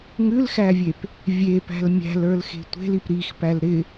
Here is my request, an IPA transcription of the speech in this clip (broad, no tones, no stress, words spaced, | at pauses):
ŋʉlxævʲep | vʲepæ̤l mʲæ̤lə˞lxe̤ tʷe̤lip ɾixpæl ɾɪ